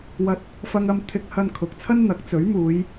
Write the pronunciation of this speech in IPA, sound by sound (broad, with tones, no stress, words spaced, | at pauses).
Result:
wɐ˧t̚ | fɐ˧ŋɐ˧m t̪ʰɪ˧k̚hɐ˧n kʰʊ˨k̚t͡sʰɐ˥nn̪ɐ˨˥k̚ t͡sɵ˨˥ɥmuː˨˧j